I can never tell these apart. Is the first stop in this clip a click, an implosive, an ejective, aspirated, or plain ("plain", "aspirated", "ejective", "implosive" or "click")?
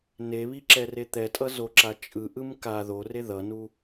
click